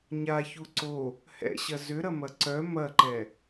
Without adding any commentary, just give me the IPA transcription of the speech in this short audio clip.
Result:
ɲaçu ǀo | hɛ̰ɕɐ zʏɾɐmɐ ǀœ mɐǃɛ

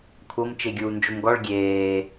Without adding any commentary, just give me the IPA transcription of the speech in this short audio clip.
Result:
kʷʰɤm t͡ʃeɡʲuːnd͡ʒomɡɔɭ ɡʲeː

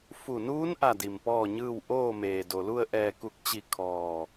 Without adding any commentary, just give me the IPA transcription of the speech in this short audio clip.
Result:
fu˧˩nuː˧˥n ʔa˥˨di˧˩mpɔː˥˨ɲɯː˥˨w ʔoː˥˨meː˩do˩lu˥˨ə̯ ʔɛː˧˩ku˧˩k̚t͡ɕi˧˩ kʰɔː˧˩

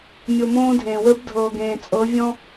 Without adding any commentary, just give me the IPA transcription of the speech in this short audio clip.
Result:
mʲo˨mõː˦dʱẽː˨wə˞˦b dʱɤː˨ɡẽː˨t͡sʼɤ˨˦vʲɔ̃˦

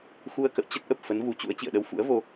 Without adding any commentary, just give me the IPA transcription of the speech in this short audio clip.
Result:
xu˧ə̯kə̰˧˨w t͡ɕə˦˥t̚ʔə˨˩p̚ fə˨˦nvu˨˦t͡ɕṵ˧˥ə̯ t͡ɕḭ˧˨ə̯ɗə˧wfṵ˧˥ə̯vo˧

